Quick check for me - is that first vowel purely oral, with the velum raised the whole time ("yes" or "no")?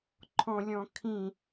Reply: no